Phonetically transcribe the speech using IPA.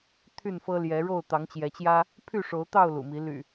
t̪ʰ y˥˨ n f ɤ˦ l j ɛ˨˦ ɻ o˥˨ ʊ̯ t̪ ɑ˨˦ ŋ t͡ɕ j ɛ˨˦ t͡ɕ j ä˦ | pʰ y˥˨ ʂ o˨˦ ʊ̯ t̪ ɑ˥˨ ʊ̯ l ṵ˨˩ m i˨˦ l y̰˨˩

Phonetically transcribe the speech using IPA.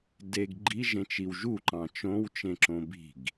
d e ɡ ɡ͡ǃ i ʒ ẽ t͡ʃ i w ʒ u ǃ ɑ̃ t͡ʃ õ w t͡ʃ ẽ ǁ õ b i̤ ɡ

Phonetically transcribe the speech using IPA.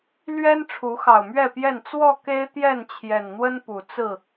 l ɥ ɛ˦ n ʈ͡ʂʰ u˨˦ x ɑ˨˩ ʊ̯ m ɥ ɛ˥˨ p j ɛ˥˨ n t͡s w ɔ˥˨ k e˦ ɪ̯ t̪ j ɛ˥˨ n t͡ɕʰ j ɛ˨˩ n n̪ w ə˦ n p u˨˩ t͡s ɹ̩˥˨

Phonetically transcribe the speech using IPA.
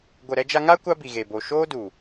ɡʷ ə˨ ɾ ɛ˧ d͡ʒ a˧ ŋ a˦ kʷ a˦ b i˨ ɣ e˨ b o˨ ʃ oː˦ d u˨

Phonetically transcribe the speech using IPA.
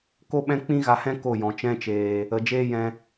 k o˦ ɓ ɛ̃˦ k͡p ĩ˦ ɣ a˧ h ɛ̃˦ k o˦˨ j ɔ̃˨ t͡ʃ ɛ̃˧ t͡ʃ eː˨ | ə˨ d͡ʒ eː˦ j ɛ̃˧

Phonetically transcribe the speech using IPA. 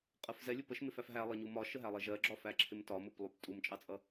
qʼ ɜ f z ɛ lʲ ʊ p ə ʃ m ɪ f æ f ɦ æ lˠ ə ɲ u m ɒ ʃ ə ɦ æ lˠ ɛ ʒ ɜ ɡ͡ǁ ɒ f æ ǁʰ ɪ m t ɒ m ʊ p lˠ u p tʼ u m t͡ʃʼ ɑ t͡sʼ ʌ

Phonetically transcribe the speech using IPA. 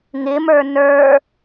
ŋ ɪ m ə˞ n ə˞

